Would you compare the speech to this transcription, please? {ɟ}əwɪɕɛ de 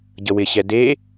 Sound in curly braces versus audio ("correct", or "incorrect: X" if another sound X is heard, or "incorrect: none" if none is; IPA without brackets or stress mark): correct